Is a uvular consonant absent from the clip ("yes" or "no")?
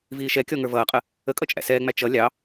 no